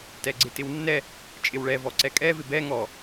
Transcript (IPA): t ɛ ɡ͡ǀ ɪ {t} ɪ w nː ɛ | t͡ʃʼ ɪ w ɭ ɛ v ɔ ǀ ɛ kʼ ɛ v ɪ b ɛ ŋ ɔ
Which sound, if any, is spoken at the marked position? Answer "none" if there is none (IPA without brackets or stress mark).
t